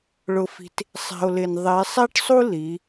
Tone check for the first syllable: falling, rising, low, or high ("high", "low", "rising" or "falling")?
low